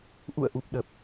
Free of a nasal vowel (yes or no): yes